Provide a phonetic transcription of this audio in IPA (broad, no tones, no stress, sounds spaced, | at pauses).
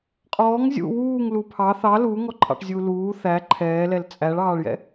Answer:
qʼ ɔː ŋ zʲ ṵ w uː ŋ l u pʰ ɑ θ ɑ l uː ŋ ɔ ǃʰ ɑ̰ ʈ zʲ uː l uː θ æ ǃʰ ɛː l ɛ l t͡sʼ æ ɭ ɑː ɭ j ɛ̰